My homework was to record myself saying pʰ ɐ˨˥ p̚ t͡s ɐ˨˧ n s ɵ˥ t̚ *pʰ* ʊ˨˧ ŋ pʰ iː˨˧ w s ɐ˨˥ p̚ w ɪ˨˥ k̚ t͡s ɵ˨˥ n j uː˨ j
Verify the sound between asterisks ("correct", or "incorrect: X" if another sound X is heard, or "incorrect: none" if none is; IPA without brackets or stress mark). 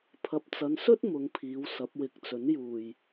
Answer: incorrect: m